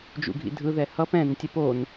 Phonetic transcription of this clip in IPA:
d͡ʒ ṵ ɡʱ ḭ dʱ ɯ ð ɛ h ʌ p ɛ̃ n tʲ ɛ p o n

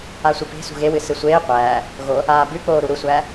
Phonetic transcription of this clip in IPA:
a sʷ ɨ p e̤ s ṳ ɣ e w ɨ s ɨ sʷ eː qʷ æː | ɣ o | aː b ʉ k͡p oː ɾ u ɾ u sʷ æː

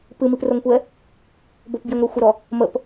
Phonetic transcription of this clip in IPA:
p ɨ m i p r o ŋ kʷ ɛ | b o p b j ə ŋ ɾ o xʷ ə ɾ ɔ | m ə p

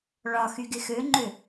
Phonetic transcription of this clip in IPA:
ɭ ɒ x y ɡ ɪ x ø ŋ͡ǃ ø

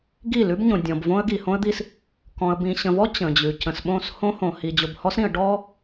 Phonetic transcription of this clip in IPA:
ɡ i˦˨ l ʉ˦ b ɲ õ˨ dʲ ɔ̃˨ b v õ˦ ə̯ ɡ i˨ h õ˦ ə̯ d̪ i˦ s | k ɔ̃˨ ə̯ b ĩ˨ ɕ ə̃˨ v ɔ˦ t͡ɕ ə̃˨ d͡ʑ ʉ˨ c ə̃˨ s ɓ õ˦˨ s h õ˦ h õ˨ h i˨ d͡ʑ o˨ b h ɔ˦ s ɾ ĩ˨ ə̯ ɖ ɔ˦

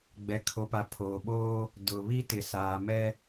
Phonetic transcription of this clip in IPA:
ɡ͡b ɛ˨ kʰ o˨ p a˨ pʰ oː˨ ɓ oː˦ | d ʊ˨ β i˦ t ɪ˨ s aː˨ m ɛ˦

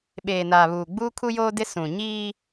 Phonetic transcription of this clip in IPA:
ɓ eː˨ n aː˨ β uː˨ ɡ͡b uː˦ kʰ u˦ j oː˦ d ɪ˦ s ũ˨ ɲ iː˦

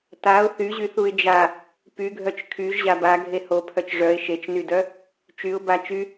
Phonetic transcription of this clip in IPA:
t a ʊ̯ θ y ʑ y θ u ɪ̯ d͡ʒ a | p y ɡʱ œ t͡ʃ kʰ y ʒ ʑ a b a ɡʱ e h o pʰ œ t͡ʃ ʐ œ ɪ̯ ʃ e t͡ʃ n y d œ | t͡ʃ y ʊ̯ b a t͡ʃ y

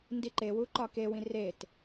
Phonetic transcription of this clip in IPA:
n d i ǃ e w u ǃ ɒ k e w ĩ r e t

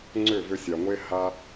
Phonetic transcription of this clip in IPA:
ŋ͡ǀ ʏ˦˨ v ʏ˧ sʲ a˨ ŋʷ e˦ h a˦

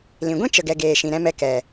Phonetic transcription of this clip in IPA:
l ĩ˨ ɡʷ ĩ˦ t͡ʃ ə˨ ɡ ɛ˨ ɡ eː˨ ʃ ĩ˨ ɾ ɛ̃˦ m ɛ˧ k ɛ˨

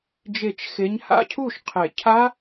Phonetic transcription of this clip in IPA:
d͡ʒ e˨˩˦ t͡ʃ x e˨˦ ɲ h a̰˦˥ cʰ u˥˩ ʃ qʰ e˨˩˦ cʰ a˦˥

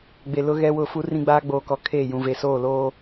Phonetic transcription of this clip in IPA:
ɡ͡b e˨ l ʊ˦ ɣ ɛ˦ w ʊ˦˨ f u˦ r ĩ˦ ɡ͡b aː˦ ɡ͡b oː˨ k ɔ˨ kʰ eː˦˨ j ũ˨ v e˨ s oː˦˨ l oː˦

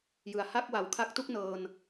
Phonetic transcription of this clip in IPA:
j ɯ˨˩ a̯ h a˥˩ k̚ w a˨˩ w kʰ a˦˥ k̚ t u˥˩ k̚ n ɤː˧ n

